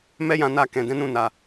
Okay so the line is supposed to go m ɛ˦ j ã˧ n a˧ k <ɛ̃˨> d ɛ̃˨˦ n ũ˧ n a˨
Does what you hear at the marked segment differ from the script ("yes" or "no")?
no